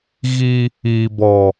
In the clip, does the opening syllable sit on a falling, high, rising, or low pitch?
high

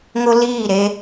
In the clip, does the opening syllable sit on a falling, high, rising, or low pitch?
high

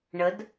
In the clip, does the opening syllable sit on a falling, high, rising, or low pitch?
rising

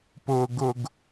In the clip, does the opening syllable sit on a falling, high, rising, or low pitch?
low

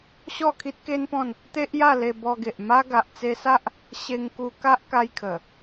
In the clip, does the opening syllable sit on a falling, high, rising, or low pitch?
falling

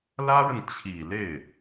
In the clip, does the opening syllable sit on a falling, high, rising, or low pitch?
high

